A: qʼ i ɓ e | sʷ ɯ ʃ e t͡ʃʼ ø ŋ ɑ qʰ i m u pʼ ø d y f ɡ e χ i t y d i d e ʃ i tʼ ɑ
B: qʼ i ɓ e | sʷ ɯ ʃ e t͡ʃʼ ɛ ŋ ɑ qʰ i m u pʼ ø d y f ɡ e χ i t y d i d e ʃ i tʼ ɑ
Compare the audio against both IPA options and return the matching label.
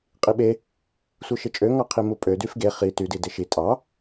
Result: A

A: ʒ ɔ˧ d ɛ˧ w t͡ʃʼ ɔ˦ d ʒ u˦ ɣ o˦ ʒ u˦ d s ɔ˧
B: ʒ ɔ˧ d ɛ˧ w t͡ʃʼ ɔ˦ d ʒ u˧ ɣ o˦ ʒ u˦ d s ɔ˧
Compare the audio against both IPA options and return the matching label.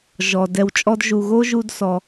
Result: B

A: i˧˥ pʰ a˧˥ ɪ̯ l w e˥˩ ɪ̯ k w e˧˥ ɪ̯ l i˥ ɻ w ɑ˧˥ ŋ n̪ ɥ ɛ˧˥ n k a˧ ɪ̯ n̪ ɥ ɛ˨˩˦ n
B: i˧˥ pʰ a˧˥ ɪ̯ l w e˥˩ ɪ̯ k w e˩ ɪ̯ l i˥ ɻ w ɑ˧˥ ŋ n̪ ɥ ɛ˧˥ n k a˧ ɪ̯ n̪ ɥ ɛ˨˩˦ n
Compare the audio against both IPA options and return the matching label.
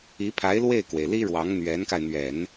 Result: B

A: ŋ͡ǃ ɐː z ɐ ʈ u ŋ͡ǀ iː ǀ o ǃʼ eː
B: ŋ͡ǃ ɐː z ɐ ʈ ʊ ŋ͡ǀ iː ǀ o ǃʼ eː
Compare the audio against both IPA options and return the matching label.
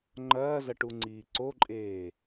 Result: A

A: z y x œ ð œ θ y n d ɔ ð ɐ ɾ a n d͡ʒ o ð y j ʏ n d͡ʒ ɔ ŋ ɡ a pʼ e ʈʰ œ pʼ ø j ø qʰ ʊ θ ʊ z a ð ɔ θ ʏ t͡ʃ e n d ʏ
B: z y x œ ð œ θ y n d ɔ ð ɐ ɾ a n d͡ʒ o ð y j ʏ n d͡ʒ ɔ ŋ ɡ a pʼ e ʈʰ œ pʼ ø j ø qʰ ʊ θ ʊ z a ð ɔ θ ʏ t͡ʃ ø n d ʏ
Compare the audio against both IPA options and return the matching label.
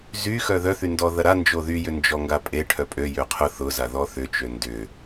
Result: B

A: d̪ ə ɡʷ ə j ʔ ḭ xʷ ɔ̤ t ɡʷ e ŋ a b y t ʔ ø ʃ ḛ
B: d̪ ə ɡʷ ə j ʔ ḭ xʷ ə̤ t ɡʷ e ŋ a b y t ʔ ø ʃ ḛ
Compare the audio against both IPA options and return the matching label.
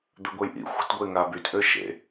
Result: B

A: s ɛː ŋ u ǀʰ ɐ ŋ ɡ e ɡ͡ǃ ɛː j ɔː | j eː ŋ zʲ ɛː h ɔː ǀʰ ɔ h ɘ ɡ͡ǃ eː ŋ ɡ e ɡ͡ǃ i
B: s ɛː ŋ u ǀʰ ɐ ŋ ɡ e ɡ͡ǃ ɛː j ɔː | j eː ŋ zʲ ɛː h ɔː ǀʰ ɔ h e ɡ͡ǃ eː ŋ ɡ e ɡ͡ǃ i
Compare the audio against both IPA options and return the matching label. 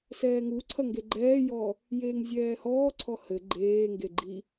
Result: A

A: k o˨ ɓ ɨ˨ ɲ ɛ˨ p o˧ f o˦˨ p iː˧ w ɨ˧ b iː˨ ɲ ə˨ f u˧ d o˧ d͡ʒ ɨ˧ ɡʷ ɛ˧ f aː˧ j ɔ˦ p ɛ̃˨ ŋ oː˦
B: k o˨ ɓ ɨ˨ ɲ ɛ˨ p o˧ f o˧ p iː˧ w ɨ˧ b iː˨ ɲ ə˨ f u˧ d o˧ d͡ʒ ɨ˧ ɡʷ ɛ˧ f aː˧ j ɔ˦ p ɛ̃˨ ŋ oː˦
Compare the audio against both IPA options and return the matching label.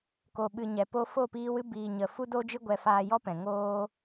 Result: A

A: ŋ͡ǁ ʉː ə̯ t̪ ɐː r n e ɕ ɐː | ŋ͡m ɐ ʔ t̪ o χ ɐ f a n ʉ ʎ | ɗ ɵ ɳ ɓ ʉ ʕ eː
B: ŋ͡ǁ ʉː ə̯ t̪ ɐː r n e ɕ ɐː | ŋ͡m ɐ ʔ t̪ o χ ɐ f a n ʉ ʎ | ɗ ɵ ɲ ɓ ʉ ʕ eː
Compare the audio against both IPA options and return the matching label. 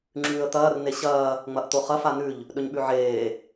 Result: B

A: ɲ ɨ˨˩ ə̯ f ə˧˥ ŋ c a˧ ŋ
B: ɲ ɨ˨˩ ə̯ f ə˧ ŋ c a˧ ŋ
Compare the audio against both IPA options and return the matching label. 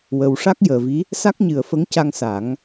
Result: A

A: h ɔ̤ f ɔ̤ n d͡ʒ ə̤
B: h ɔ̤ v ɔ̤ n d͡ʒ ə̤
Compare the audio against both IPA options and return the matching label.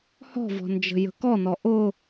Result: B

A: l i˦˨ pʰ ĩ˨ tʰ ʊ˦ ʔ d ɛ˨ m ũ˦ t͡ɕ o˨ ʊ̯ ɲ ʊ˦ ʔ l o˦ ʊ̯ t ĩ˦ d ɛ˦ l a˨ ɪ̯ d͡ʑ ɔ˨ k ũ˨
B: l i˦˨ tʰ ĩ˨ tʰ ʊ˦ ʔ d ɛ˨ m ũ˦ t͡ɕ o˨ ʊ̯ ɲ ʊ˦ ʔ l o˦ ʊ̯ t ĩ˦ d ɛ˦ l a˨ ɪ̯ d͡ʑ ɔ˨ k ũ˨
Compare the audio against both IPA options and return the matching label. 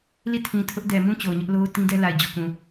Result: B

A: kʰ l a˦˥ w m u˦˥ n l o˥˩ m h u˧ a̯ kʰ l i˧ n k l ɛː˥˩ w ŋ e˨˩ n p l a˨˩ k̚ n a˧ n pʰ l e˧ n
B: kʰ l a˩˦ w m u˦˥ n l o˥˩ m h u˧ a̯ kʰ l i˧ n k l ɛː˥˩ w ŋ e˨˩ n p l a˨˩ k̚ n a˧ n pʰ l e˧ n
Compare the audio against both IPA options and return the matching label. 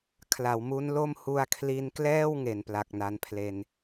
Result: B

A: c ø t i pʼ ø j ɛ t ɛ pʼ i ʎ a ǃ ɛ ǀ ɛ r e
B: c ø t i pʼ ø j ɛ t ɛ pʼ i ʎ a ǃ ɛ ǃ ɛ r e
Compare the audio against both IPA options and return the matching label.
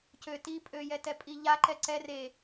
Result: A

